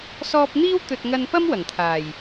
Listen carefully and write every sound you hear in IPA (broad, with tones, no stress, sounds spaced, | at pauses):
s ɔː˧ p̚ n̪ iː˥ w t̪ ɵ˧ t̚ ŋ ɐ˧ n p ɐ˥ m w ɐ˨˩ ŋ t̪ʰ aː˨˩ j